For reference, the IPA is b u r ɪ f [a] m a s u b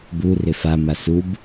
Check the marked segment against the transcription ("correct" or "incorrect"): correct